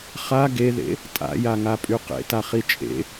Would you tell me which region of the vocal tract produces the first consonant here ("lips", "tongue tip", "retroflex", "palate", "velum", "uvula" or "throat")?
uvula